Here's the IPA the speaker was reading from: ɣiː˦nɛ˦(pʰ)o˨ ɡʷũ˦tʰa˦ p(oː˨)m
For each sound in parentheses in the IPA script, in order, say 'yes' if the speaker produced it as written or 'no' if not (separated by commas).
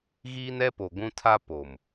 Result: no, no